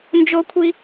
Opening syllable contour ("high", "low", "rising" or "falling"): high